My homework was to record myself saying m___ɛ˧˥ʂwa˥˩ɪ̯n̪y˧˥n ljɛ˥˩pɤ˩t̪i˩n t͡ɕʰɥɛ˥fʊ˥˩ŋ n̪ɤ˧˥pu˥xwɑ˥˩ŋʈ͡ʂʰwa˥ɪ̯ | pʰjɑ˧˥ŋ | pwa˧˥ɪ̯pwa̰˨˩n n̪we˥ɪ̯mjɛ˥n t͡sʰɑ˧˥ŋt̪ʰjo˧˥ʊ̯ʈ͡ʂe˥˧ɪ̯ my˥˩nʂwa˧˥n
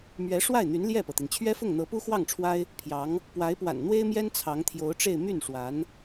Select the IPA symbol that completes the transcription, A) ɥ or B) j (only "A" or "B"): A